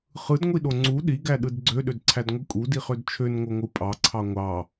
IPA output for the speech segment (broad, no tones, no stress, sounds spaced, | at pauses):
χ ɯ d ŋʷ i ɗ o ŋ͡ǀ u ɗ i ɡ æ ɗ ɯ d ɡ͡ǀ ø ɗ ø d ǀʰ æ d ŋʷ ɯ kʼ u d i χ ø d t͡ʃʰ ø n ŋ o ŋʷ ɯ pʼ ɑ ǀʰ ɑ ŋʷ ɑ